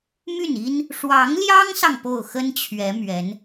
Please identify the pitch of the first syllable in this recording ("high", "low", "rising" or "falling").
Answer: falling